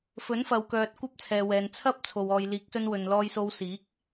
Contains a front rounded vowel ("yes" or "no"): yes